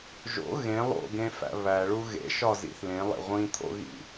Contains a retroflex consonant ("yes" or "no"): yes